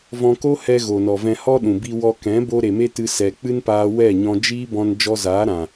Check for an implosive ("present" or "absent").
present